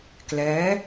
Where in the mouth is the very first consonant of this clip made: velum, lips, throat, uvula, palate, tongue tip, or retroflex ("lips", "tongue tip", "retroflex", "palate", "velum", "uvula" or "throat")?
velum